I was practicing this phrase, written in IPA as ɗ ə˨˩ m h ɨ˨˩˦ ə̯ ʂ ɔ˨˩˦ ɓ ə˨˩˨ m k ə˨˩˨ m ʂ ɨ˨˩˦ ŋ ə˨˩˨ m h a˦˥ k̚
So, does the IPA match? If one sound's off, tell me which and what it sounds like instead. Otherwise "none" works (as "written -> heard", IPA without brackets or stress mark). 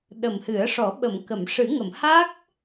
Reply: none